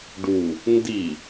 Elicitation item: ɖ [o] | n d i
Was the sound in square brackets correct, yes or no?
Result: no